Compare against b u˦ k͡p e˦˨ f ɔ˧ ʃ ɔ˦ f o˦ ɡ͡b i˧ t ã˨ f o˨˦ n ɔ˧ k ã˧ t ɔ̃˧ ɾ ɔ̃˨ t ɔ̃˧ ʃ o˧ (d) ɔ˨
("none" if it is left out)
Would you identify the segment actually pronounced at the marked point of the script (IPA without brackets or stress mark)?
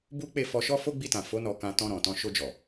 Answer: d͡ʒ